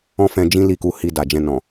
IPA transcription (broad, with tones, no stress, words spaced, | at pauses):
ɔ̃˦fɛ̃˧d͡ʒĩ˦ li˦˨ku˧hi˧da˨ d͡ʒɛ̃˧nɔ̃˨